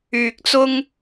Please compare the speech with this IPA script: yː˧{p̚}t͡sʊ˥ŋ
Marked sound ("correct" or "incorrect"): incorrect